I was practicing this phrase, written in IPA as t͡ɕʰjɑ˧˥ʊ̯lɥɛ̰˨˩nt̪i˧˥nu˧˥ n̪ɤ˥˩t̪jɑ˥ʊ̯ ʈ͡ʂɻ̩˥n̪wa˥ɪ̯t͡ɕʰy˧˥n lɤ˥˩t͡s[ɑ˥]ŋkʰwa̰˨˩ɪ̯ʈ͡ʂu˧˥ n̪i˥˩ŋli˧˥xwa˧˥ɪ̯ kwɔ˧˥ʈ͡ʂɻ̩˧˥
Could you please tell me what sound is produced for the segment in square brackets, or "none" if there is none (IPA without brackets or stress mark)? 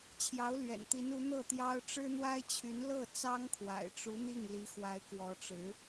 ɑ˥